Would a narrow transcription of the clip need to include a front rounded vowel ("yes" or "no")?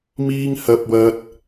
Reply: no